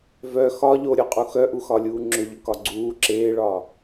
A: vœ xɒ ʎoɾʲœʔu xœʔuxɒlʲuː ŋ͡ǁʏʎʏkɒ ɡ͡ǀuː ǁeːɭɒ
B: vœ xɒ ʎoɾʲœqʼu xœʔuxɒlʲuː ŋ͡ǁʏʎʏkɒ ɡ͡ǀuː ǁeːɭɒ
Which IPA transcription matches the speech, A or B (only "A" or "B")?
B